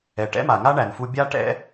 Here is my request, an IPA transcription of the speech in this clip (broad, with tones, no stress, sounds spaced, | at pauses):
ɛ˩ ʈ ɛ̰˥ m a˩ ŋ a˥ ɳ æ˩ n f u˧ bʲ a˥ ʈ ɛ̰˥